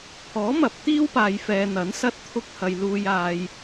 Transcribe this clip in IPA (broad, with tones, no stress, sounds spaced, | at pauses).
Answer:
pʰ ɔː˨˥ m ɐ˨ p̚ t̪ iː˥ w p aː˨ j f ɛː˨ n̪ ɐ˨˥ n s ɐ˥ t̚ t̪ʰ ʊ˧ k̚ h ɐ˨ j l uː˧ j aː˧ j